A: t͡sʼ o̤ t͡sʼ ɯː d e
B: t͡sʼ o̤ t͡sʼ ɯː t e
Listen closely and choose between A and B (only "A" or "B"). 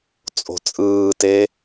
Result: B